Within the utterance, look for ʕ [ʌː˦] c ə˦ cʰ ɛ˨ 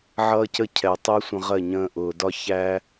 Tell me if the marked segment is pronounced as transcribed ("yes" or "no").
yes